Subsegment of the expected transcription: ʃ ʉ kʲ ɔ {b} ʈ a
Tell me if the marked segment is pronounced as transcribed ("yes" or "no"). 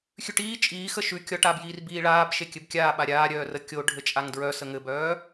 no